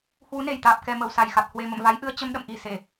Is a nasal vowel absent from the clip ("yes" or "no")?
yes